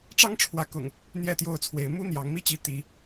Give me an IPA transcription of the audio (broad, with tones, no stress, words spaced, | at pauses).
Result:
ʈ͡ʂɑ˦ŋʈ͡ʂʰwä˨˦kʊ̰˨˩ŋ | n̪jɛ˥˨t̪jo˥˨ʊ̯t͡sʰwe˨˦ɪ̯ mu˦ n̪jɑ˨˦ŋ mi˦t͡ɕi˨˦ t̪i˨˦